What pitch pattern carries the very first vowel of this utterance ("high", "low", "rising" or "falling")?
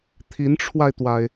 rising